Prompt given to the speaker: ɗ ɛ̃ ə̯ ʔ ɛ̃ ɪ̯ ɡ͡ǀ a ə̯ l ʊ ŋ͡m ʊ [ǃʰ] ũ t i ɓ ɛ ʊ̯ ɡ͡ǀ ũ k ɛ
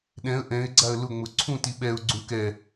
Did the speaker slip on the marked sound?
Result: yes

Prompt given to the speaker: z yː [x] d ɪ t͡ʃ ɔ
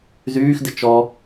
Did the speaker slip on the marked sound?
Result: no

